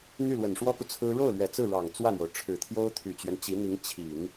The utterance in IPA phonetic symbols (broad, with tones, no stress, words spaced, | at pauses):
n̪y˥˩lwə˨˩nʂwɔ˥ku˨ t͡sʰɹ̩˥ ɻo˥˩ʊ̯lɥɛ˨˩ t͡sɹ̩˥˩ ɻɑ˨˩ŋt͡swä˥˩n̪jo˩ʊ̯ ʈ͡ʂʰɻ̩˨˩t̪ʰjo˥ʊ̯ t̪ʰy˨˩t͡ɕɥɛ˦nt͡ɕi˧˥n̪i˧˥ŋ t͡ɕʰi˨˩˦ŋ